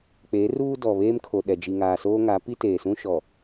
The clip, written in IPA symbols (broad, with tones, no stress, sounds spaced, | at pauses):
k͡p e˨˦ r uː˦ d ɔ˨ β eː˦ m kʰ o˨ ɗ ɛ˨ d͡ʒ i˨ ŋ aː˨ s oː˦ ŋ a˨˦ p i˦ t eː˨ s ũ˦ ʃ ɔ˨